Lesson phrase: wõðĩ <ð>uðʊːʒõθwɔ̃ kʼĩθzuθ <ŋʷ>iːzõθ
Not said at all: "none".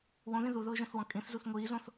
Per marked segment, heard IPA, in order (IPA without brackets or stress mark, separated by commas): ð, ŋʷ